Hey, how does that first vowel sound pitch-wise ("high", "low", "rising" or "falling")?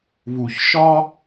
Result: low